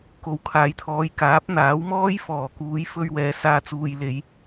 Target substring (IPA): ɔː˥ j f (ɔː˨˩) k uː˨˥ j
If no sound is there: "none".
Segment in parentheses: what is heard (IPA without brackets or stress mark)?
ɔː˨˩